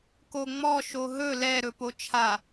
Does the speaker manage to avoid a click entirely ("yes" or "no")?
yes